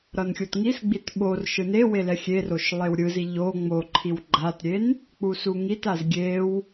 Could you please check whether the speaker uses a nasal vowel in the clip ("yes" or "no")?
no